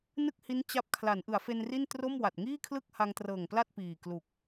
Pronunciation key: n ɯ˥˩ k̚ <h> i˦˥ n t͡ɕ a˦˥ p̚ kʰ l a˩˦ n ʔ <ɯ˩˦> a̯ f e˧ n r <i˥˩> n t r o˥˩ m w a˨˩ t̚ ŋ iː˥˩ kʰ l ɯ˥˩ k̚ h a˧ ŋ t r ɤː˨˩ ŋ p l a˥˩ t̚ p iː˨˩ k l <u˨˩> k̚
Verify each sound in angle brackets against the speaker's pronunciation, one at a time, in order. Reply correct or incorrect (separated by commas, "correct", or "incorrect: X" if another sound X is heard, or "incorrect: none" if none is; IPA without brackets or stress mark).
correct, correct, correct, correct